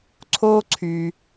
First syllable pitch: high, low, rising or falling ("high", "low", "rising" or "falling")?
high